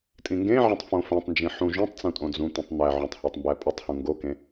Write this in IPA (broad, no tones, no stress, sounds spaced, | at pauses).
tʼ ĩ ŋ ɡ ẽ ʕ ẽ tˤ f õ f ẽ tˤ n d͡ʒ ĩ ħ ũ ʒ ũ tˤ t͡s ũ tʼ õ d͡z ũ t̪ ĩ tˤ n̪ æ ʕ õ tˤ h æ tˤ m b æ pʼ u tˤ h ũ ŋ ɡ o k ẽ